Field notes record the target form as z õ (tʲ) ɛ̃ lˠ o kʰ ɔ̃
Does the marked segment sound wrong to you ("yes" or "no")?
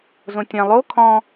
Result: no